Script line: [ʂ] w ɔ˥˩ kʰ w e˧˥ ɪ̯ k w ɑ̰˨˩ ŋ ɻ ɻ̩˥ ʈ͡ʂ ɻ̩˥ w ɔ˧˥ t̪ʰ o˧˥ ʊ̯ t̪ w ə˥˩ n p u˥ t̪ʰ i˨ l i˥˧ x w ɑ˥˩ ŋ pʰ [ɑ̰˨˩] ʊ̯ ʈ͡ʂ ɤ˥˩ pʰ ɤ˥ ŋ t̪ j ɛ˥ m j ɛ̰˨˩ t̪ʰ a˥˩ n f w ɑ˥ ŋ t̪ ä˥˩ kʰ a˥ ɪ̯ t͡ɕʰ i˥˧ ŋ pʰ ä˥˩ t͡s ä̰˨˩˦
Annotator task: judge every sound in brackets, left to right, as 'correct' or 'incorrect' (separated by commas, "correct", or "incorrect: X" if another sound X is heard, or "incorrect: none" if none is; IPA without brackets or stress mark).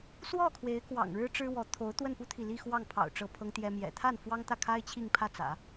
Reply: incorrect: s, correct